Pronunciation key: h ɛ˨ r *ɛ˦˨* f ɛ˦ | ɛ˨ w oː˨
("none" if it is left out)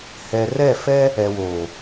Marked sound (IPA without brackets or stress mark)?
ɛ˦˨